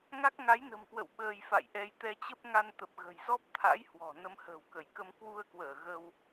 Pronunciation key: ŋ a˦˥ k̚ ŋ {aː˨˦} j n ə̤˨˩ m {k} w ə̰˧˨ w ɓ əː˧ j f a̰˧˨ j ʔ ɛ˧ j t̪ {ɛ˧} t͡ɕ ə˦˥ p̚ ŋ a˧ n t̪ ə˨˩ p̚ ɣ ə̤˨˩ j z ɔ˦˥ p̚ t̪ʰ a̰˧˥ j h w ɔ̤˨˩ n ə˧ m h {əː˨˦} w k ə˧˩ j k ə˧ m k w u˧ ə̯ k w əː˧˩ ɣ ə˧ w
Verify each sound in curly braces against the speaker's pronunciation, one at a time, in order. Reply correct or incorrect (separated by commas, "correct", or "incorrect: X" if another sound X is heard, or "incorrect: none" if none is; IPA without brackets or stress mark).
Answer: incorrect: a˨˦, correct, correct, incorrect: ə̤ː˨˩